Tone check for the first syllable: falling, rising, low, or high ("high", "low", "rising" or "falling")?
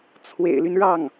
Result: low